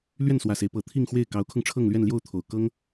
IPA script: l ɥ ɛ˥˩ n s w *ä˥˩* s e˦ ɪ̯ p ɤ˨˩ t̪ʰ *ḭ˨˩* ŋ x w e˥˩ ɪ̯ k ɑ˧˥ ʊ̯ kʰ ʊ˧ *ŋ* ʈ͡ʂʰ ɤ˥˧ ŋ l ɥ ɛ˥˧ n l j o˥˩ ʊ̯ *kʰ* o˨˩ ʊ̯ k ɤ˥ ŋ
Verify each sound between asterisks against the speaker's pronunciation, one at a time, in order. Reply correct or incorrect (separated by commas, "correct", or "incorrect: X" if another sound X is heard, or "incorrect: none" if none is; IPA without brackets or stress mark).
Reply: incorrect: ä˨˩, incorrect: i˥˧, correct, incorrect: t̪ʰ